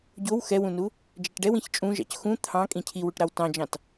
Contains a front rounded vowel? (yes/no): no